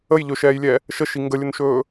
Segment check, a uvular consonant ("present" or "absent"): absent